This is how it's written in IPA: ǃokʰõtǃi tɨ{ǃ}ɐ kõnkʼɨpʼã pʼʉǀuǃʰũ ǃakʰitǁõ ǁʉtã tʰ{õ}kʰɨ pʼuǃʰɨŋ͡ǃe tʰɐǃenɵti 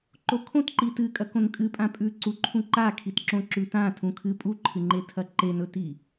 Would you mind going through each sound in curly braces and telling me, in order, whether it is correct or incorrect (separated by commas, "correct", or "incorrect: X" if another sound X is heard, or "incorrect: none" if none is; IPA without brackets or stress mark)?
incorrect: kʼ, incorrect: ũ